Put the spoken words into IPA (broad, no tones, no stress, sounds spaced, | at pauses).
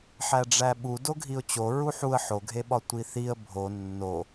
ħ æ ɖ͡ʐ æ ɓ u d o ɡʱ i ʊ̯ t͡ɕ o ɹ u ħ u ə̯ ħ o ɡʱ e ɓ ɒ tʷ i θ i ə̯ bʱ o nː o